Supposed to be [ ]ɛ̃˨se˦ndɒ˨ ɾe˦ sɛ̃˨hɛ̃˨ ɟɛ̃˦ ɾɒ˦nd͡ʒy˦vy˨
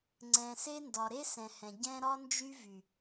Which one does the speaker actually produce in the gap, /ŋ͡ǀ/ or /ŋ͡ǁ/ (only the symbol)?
ŋ͡ǀ